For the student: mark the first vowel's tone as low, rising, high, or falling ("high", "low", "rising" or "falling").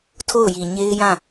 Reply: falling